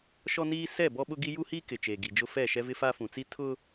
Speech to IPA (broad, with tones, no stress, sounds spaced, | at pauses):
ʃ ɔ˦ n iː˦ s ɛ˦˨ b ɔ˦ ɓ ʊ˦ ɡ i˦ j u˦ h iː˦ k ɪ˨ t͡ʃ eː˨ ɡ i˨ d͡ʒ ʊ˦ f ɛ˦˨ ʃ ɛ˦ v ɪ˦ f a˦ f ũ˨ t͡s i˦ tʰ ʊ˦